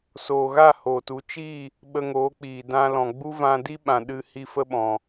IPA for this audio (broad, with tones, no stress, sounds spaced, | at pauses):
s oː˨ ɣ a˦˨ h oː˨ t u˨˦ t͡ʃ iː˦˨ | ɓ ə˧ ŋ oː˨˦ k͡p iː˨ d ã˧ l ɔ̃˨ ɡ͡b u˦ v ã˧ d i˦ ɓ ã˨ ɗ ɨ˧ h i˦ f ə˦ ɓ ɔ̃˨